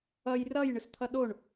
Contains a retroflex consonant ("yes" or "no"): yes